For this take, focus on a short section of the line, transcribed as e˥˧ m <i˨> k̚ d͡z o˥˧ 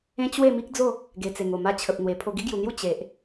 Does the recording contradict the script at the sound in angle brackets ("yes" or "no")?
yes